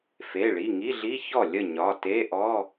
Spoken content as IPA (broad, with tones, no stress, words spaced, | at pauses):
fe˩˧˩ ɭi˩˧˩ ŋi˧˥˧ɮi˧˥˧çɔ˥˩ lʲə˥˩ɲɒ˩˧˩ te˧˥˧ʔɔ˧˥˧